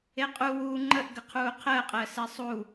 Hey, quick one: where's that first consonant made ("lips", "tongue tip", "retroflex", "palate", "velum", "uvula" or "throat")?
uvula